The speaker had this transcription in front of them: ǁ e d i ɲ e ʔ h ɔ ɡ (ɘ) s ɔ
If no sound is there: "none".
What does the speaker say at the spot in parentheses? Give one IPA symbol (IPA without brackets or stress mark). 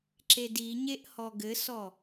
ɘ